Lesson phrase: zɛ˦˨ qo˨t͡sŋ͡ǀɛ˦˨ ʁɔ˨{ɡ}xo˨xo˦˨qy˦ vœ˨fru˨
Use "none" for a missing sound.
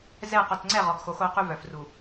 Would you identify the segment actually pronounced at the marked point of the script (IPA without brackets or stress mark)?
ɡ